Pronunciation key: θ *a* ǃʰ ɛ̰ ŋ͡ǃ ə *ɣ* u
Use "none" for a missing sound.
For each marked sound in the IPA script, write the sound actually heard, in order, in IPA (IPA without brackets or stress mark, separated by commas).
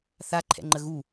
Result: a, ɣ